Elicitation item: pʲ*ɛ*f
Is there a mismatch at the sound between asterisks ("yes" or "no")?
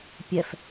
no